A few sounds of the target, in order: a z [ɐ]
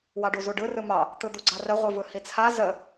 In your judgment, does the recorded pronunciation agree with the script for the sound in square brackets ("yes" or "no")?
no